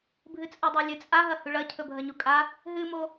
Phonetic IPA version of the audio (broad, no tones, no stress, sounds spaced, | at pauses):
bʱ ɨ t͡sʼ o dˤ a lʲ ɨ t͡sʼ a ɦ ɐ h ʉ ɭ ɐ cʰ ɵ bʱ ɐ ɲ u kʼ a | ɦ ɨ m o